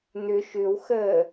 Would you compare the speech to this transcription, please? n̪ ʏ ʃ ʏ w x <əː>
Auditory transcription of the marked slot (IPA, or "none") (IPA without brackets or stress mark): əː